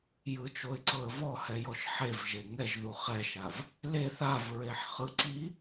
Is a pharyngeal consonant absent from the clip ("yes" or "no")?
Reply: no